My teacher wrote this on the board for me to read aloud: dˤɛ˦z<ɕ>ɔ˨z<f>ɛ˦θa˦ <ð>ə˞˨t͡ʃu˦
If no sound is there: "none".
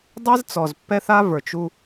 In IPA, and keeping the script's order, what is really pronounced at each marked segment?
t͡s, pː, v

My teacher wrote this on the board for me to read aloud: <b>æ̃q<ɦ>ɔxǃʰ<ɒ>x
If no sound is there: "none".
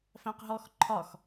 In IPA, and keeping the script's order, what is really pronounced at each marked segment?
f, ɦ, ɒ

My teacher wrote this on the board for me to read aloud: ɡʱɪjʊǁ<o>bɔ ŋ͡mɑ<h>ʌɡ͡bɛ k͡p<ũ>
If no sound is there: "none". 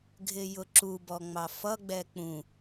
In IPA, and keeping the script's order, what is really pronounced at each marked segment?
u, f, ũ

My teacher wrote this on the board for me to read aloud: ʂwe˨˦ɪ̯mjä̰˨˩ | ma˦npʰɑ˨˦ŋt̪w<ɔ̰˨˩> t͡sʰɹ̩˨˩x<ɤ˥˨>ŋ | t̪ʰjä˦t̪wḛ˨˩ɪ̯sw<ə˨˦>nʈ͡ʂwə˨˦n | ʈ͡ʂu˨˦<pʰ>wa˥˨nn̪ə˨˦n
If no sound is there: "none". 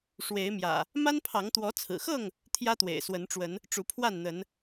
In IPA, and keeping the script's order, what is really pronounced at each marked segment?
ɔ˨˦, ɤ˥˨, ə˨˦, pʰ

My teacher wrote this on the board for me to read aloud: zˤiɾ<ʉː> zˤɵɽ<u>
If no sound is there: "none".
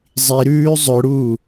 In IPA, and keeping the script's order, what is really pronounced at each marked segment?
ʉː, uː

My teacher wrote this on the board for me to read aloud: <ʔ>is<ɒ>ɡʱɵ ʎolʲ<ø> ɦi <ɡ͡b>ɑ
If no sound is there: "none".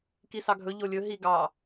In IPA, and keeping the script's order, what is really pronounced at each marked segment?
k, ɑ, ɵ, ɡ

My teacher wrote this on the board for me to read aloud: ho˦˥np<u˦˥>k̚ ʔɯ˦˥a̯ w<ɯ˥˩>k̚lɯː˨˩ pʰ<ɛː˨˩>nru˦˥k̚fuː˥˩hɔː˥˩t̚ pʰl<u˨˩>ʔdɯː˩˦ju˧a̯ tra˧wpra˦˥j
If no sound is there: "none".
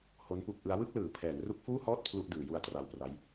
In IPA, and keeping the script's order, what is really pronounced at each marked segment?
u˦˥, ɯ˥˩, ɛː˩˦, u˥˩

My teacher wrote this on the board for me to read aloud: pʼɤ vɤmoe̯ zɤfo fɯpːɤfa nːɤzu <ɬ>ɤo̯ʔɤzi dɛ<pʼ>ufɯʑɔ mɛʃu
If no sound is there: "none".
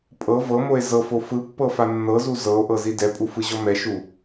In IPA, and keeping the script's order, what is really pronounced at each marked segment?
z, pʼ

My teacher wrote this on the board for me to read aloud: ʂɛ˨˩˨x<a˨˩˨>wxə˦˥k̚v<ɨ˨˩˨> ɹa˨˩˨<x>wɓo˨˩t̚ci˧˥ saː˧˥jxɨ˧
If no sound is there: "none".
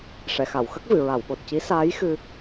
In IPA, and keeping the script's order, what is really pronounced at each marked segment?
a˨˩˨, ɨ˨˩˨, none

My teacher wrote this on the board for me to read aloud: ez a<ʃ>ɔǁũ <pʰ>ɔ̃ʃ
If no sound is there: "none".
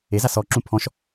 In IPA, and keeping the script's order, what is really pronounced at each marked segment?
s, pʰ

